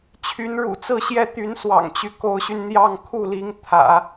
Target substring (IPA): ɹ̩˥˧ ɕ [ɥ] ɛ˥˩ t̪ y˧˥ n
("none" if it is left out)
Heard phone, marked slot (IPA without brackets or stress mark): j